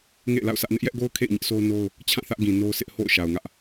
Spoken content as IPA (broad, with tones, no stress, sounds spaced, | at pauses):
ŋ ḛ˦˨ ɪ̯ l a̰˦˨ ʊ̯ sʰ ä˦ ʔ n ɪ˦ ʔ j ɛ˦ ʔ ɡ o˦ ʊ̯ kʰ ḛ˦˨ ɪ̯ ɲ ɪ˦ ʔ s o˦ ʊ̯ n o˦ ʊ̯ | t͡ɕʰ ã˦˨ θ ä˦ ʔ ɡ ĩ˨ n o˦ ʊ̯ s ɪ˦ ʔ h o̰˦˨ ʊ̯ ʃ a˨ ʊ̯ ŋ ä˦ ʔ